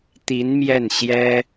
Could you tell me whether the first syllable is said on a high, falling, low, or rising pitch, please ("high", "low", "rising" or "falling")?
rising